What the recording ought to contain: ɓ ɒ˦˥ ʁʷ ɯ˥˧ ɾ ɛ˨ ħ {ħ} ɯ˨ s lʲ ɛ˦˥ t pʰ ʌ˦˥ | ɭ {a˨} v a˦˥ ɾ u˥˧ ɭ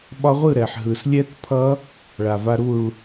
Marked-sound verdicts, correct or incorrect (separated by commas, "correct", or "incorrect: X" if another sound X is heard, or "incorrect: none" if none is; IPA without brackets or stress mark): incorrect: ɦ, correct